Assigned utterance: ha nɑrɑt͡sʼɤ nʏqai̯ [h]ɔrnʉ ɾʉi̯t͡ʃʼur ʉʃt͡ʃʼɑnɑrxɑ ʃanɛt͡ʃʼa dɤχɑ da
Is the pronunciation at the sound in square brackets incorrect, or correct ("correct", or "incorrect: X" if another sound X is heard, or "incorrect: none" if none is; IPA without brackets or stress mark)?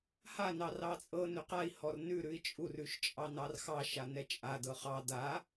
correct